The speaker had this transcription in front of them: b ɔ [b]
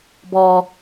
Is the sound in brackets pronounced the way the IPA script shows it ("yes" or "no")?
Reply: no